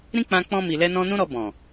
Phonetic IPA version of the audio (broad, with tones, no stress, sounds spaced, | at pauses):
ɾ ĩ˦ k͡p ã˧ k͡p ɔ̃˧ m i˨ l ɛ˧ n ɔ̃˧ n ũ˦ ɾ ɔ˧ b ɔ̃˨